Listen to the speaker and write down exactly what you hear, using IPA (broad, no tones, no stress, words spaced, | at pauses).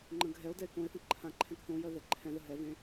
ŋ͡ǃə̃ɡʱɛo̯dɛe̯ kõe̯θə̃ ǃʰãǃʰɛ̃k θõjɜ ðɛǃʰɛ̃ðə ɦɛvẽ